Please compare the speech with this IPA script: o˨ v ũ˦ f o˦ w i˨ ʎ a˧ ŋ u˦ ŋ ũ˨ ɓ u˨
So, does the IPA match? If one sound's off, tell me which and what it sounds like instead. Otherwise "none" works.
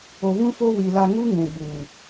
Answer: ʎ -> l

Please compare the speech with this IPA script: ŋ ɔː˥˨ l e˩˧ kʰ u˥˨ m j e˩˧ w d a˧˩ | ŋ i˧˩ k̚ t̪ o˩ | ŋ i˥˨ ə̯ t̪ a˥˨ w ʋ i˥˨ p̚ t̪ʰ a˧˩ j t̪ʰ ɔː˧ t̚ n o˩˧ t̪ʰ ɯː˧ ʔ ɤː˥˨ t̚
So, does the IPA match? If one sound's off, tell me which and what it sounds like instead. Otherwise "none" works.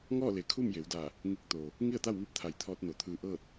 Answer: none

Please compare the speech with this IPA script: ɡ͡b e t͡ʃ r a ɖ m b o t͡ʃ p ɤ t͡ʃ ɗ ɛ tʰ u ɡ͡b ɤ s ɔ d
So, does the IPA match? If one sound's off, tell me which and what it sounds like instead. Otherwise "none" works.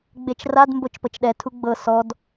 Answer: ɖ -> d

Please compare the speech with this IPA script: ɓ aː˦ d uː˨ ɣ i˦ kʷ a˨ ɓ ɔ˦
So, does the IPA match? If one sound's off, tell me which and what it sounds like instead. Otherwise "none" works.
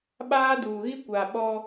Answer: none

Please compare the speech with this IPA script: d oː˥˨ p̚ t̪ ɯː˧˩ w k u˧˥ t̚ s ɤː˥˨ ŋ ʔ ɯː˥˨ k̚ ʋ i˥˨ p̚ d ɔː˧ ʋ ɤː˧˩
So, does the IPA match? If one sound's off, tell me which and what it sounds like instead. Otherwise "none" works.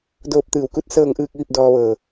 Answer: none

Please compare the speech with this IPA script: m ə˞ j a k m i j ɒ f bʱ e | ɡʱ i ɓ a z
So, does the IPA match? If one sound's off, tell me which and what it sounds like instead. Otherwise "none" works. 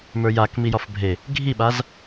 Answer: none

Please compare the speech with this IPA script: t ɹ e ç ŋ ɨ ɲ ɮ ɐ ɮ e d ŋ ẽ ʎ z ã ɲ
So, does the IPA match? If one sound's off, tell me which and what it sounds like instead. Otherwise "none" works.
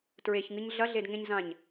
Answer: ʎ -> ɲ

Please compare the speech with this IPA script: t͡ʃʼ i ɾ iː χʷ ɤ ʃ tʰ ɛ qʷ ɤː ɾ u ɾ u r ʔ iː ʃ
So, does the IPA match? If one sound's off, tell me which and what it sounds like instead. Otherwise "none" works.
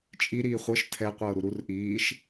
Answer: none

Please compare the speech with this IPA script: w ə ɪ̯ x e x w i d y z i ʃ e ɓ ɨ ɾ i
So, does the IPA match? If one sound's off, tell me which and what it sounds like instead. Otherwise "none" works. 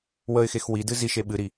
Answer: y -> ɨ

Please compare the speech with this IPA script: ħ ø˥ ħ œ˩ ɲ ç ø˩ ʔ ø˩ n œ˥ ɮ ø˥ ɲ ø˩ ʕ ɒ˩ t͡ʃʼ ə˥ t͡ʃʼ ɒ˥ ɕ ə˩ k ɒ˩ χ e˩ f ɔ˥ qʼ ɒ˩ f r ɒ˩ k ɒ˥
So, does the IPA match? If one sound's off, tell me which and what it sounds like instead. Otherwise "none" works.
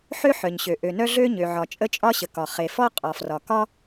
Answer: ç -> ɕ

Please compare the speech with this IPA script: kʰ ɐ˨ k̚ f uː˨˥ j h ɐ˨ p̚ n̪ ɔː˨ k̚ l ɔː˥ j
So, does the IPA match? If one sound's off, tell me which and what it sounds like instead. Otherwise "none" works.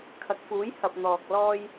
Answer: none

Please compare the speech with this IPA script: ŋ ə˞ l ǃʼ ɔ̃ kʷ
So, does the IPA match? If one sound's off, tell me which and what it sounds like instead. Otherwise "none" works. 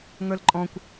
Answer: none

